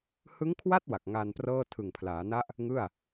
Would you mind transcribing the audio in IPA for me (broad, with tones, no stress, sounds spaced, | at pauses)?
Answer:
h ɯ˦˥ ŋ kʰ w a˥˩ t̚ w a˨˩ k̚ ŋ aː˧ n p r ɤː˥˩ tʰ ɯ˨˩ ŋ pʰ l aː˩˦ n a˦˥ ʔ | ŋ ɯ˥˩ a̯